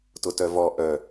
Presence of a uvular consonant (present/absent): absent